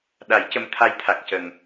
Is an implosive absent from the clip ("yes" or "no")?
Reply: no